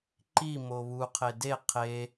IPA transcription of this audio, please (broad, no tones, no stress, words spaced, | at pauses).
ǃi moβu qʰede qʰe